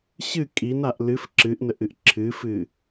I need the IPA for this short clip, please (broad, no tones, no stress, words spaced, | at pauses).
ɕɨ kʼinaʔ lɨf ǁɨʔ nəʔɨʔǁʰɨːfɨː